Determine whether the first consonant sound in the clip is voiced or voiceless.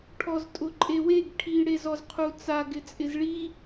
voiceless